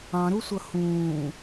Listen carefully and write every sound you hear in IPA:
ɑ̃ɾusʷʌ hũː

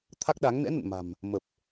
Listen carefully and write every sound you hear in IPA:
t̪ʰa˦˥k̚ɗa˨˦ŋ nɛ̰˧˥nə̰˧˨n ma̤˨˩m | mə˨˩p̚

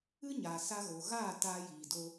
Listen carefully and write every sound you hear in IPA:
ɨ˦ɲa˨ sa˧ɣo˨ɣaː˦˨ taː˧jiː˨do˧

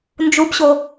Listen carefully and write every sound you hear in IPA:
nd͡ʒubɕo

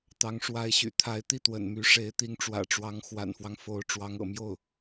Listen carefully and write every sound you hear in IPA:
t̪ɑ˧˥ŋʂwa˧˥ɪ̯ɕy̰˨˩ t̪ʰa˧˥ɪ̯t̪i˥˩t̪wə̰˨˩n my˧˥ʂe˧˥ɪ̯ t̪i˧˥ŋʈ͡ʂwä̰˨˩ʈ͡ʂwɑ˧˥ŋ xwa̰˨˩nfwɑ˦ŋfo˧˥ʊ̯ ʈ͡ʂwɑ˧˥ŋɤ̰˨˩ mjo˥˩ʊ̯

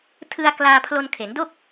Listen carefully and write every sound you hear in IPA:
tʰɯ˧a̯ klaː˧pʰlo˧n kʰe˩˦ndo˥˩k̚

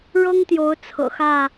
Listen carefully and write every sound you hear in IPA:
ɻɤ˦ŋt̪jo˨˦ʊ̯ t͡sʰɤ̰˨˩ xä˥˨

